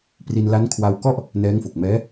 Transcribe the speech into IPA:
p r i˧ n l a˦˥ n kʰ w a˧ w k ɔ˥˩ ʔ | n ɛː˦˥ ŋ f o˨˩ k̚ m ɛː˦˥

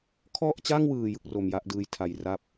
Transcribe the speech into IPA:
kʰ ɔ˥˩ ʔ t͡ɕ a˥˩ ŋ w ɯː˨˩ j ɯ˥˩ k̚ r o˧ m j a˥˩ ʔ d ɯː˦˥ j tʰ a˨˩ j r a˥˩ p̚

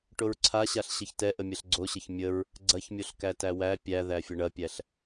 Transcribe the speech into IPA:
ʈ o ɹ ǀʰ a ɕ a ɬ ɕ ə ç t ɛ ʔ ə mʲ ɐ ɬ ɡ͡ǀ o ɕ ə ç mʲ ə ɹ | ɡ͡ǀ ɐ ç mʲ o ɬ k æ t æ w æ pʲ æ ð æ fʲ ə ɳ ɐ pʲ æ ɬ

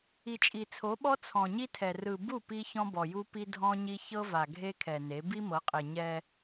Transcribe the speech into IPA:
i˨ t͡ʃʼ i˨ t͡sʰ o˨˦ ɓ ɔ˦ t͡sʰ ɔ̃˨ ɲ i˦ tʰ ɛ˨ r ɯ˨ b u˦˨ p i˦ ç ɔ̃˦ b ɔ˨ j u˦ p i˦ dʱ ɔ̃˦ ɲ i˦ ç ɤ˦ v a˨ ɡʱ e˦ kʰ ɛ˨ n e˨˦ b i˦ m ɤ˨˦ qʼ e˨ ɲ ɛ˦

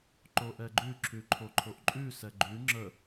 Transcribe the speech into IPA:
ǃ o ʔ ɛ ɡ͡ǃ ʉ ǁʰ ʉ ǃʰ o ǃʰ o ʔ ǃʼ ʉ s ɛ ɡ͡ǃ ʉ ŋ͡ǁ ə

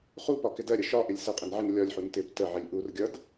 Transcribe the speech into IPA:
χ u p ɒ k ɪ d ɜ ɾʲ ə ʃ ɒ ʔ ɪ lʲ s ə qʼ ɪ n ʕ ɪ n lʲ ɒ lʲ ħ u n t ɪ p t ə ʕ ɪ lʲ ʔ u r ɡʲ ʌ d

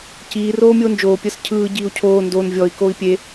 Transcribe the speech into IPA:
c iː r oː mʲ oː n d͡ʒ oː pʲ əː s cʰ ɯː ɟ iː u̯ cʰ oː n d o n vʲ ɔ i̯ k oː i̯ pʲ e

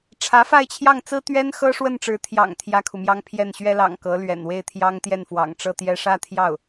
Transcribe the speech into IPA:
ʈ͡ʂʰ ä˧˥ f a˥˧ ɪ̯ t͡ɕʰ j ɑ˥˩ ŋ t͡s ɹ̩˥ t̪ ɥ ɛ˥ n x ɤ˥ ʂ w ə˥˩ n ʈ͡ʂ ɻ̩˧˥ t̪ʰ j ɑ̰˨˩ ŋ t̪ʰ j ä˥ kʰ u˨ m j ɑ˥ ŋ pʰ j ɛ˥˩ n ɕ ɥ ɛ˥ l ɑ̰˨˩ ŋ k ɤ˧˥ l ɥ ɛ̰˨˩ n w e˥˩ ɪ̯ t̪ʰ j ɑ˥ ŋ t̪ j ɛ˥˩ n f w ɑ̰˨˩ ŋ ʈ͡ʂ ɤ˥˧ t̪ j ɛ˥˧ ʂ ä˥˧ t̪ʰ j ɑ˥˩ ʊ̯

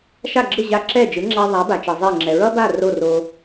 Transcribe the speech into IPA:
ʃ a˥˩ ɡ͡ǁ ɯ˥˩ ʑ a˧ ǁ ɛ˥˩ d͡ʒ ɯ˩˥ ŋ͡ǁ a˧ ðˤ a˩˥ b a˩ t͡ʃ ʌ˩ zˤ ɛ˥˩ ŋ͡ǁ ɛ˩ ɹ ʌ˥ b a˥˩ r o˥˩ r o˧

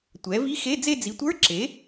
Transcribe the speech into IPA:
tʷ ɛ˩˥ v i˧˥˧ x e˧˥˧ d͡z e˥˧ d͡z i˩˥ tʷ ə˞˧˥˧ ǁ e˩˥

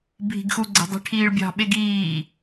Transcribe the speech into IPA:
bʱ i̤ ɡ x u ɡ͡ǀ e̤ dˤ i̤ ʈʰ iː ɭ bʲ ɑ̤ ɓ e ɡ iː

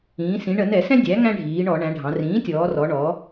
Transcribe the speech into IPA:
ĩː˩˧ s ĩ˩˧ ɳ ə˧˩˧ n ɛ˧˩˧ s ɛ̃˦ dʲ æ˩˥ ŋ æ̃˦ ɖʱ iː˩˧ ɳ ɔ˧˩˧ ɳ æ̃˩˧ ɖʱ ɑ̃˩˧ r ĩː˩˥ tʲ ɔː˩˧ r ɔ˩˧ ɳ ɔ˩˧

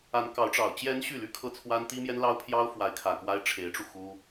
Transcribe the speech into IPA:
a˧˥ n k ɑ˧˥ ʊ̯ ʈ͡ʂ ɑ˨˩ ʊ̯ t͡ɕ j ɛ˧˥ n ɕ y˥˩ l y˥ kʰ ɤ˥˩ t͡sʰ w a˥ n t̪ i˥ m j ɛ˥ n l ɑ˥ ʊ̯ pʰ j ɑ˥ ʊ̯ f w a˧˥ ɪ̯ kʰ ä˨˩ k w a˥ ɪ̯ ʈ͡ʂʰ e˧˥ ɪ̯ ʈ͡ʂ u˧ x u˥

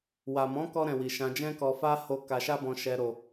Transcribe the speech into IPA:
w a˨ m ɔ̃˨˦ k ɔ˧ ɾ ɛ̃˨ w i˨ ʃ ã˧ d͡ʒ ɛ̃˦ k ɔ˧ f a˦ h o˧ k a˧ ʃ a˦ b ɔ̃˧ ʃ ɛ˧ ɾ o˧

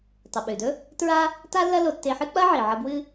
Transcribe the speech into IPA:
tˤ ɨ˩ ɓ ʉ˩ d ɵ˥ | t ɹ a˥ | t a˥ lː ɐ˥ l o˧ tː e˧ ħ ɨ˥ k͡p ɐ˥ ʕ i˩ ʕ ɐ˧ b w ɨ˥

